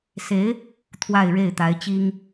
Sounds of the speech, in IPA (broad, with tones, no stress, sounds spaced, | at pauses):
s e˧˥ ɪ̯ | t̪ʰ w a˥˧ ɪ̯ ɻ e˥˩ ɪ̯ t̪ a˧˥ ɪ̯ t͡ɕ i˥ ŋ